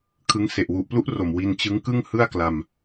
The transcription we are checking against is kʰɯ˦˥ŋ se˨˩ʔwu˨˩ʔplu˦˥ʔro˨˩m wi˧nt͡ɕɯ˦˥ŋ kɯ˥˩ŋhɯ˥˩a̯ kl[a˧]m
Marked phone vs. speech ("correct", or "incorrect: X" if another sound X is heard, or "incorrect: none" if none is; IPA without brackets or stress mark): correct